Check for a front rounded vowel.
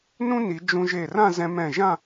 absent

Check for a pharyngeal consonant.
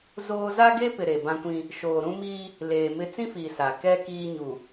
absent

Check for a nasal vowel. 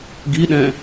present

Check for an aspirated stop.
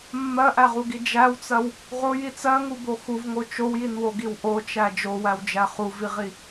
absent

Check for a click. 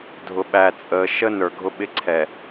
present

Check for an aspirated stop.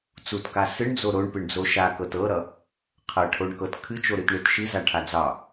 present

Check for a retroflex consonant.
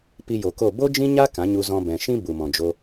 absent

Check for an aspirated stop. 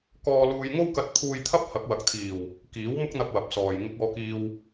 present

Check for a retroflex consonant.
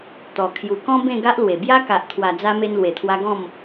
absent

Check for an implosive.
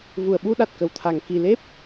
present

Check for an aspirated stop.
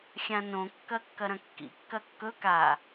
absent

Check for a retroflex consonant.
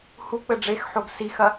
present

